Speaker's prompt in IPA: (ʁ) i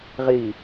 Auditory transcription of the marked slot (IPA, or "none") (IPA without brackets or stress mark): ʁ